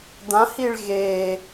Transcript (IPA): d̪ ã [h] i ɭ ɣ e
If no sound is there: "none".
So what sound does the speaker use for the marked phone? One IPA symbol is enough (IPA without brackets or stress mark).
h